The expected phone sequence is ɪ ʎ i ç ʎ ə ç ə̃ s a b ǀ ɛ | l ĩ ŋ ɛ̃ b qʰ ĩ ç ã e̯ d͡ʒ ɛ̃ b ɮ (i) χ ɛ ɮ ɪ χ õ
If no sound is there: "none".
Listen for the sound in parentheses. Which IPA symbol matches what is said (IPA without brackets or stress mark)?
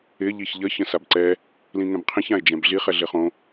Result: i